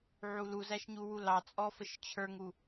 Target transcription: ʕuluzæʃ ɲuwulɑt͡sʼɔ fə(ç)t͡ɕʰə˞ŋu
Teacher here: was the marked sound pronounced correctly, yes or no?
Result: no